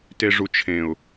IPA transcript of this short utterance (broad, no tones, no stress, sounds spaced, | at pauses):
t e ʐ u t͡ʃʰ ẽ ʊ̯